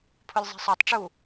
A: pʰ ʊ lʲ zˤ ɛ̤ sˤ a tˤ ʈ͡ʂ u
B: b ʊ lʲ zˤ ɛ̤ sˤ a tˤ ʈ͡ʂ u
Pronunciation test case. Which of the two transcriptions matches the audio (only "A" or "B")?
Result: A